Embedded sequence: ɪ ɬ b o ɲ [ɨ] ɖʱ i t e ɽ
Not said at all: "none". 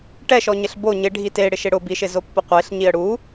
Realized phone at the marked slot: ɪ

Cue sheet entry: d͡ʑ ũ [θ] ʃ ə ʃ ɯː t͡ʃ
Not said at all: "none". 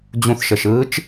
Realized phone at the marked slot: θ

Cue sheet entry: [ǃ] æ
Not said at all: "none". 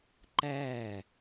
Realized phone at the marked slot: ǃ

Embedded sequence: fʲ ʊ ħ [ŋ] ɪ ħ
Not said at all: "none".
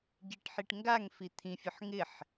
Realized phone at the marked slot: ŋ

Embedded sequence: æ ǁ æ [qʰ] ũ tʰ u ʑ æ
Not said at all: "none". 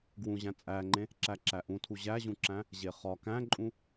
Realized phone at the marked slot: ʔ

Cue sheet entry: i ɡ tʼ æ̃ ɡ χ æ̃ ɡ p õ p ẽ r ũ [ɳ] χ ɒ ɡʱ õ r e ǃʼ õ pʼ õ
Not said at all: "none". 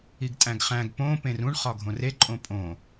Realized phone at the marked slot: ɳ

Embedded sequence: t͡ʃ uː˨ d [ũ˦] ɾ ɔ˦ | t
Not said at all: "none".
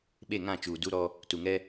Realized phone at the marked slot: u˦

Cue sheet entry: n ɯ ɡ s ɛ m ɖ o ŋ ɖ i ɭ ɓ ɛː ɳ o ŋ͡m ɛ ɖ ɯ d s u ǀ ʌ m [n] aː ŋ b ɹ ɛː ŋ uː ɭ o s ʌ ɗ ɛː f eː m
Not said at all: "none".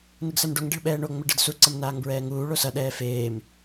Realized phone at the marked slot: n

